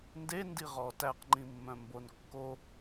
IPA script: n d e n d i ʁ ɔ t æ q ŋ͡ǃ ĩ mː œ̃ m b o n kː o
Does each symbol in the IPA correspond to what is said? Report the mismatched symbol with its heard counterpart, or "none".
none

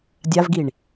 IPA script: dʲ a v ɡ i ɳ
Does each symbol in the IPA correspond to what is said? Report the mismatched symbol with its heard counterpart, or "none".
none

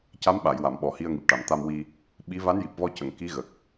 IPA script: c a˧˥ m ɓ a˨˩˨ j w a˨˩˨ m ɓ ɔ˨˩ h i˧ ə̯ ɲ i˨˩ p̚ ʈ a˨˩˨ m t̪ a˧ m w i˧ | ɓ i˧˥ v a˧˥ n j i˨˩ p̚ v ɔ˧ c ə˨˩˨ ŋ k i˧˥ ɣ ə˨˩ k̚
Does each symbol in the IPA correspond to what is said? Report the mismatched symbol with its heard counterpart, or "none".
ɲ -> ŋ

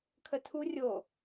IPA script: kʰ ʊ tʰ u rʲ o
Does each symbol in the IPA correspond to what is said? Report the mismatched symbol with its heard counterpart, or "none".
ʊ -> ə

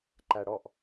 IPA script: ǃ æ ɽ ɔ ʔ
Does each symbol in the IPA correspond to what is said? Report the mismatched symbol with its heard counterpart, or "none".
none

